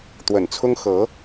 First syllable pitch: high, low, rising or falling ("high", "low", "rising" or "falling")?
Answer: low